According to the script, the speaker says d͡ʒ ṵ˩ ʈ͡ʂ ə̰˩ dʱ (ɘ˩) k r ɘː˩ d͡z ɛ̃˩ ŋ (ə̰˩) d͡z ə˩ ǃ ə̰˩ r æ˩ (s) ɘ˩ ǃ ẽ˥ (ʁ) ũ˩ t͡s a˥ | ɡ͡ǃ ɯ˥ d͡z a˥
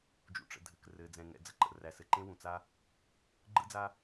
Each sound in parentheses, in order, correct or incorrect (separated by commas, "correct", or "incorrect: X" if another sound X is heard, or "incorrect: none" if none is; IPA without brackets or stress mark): correct, incorrect: ɛ̰˩, correct, incorrect: w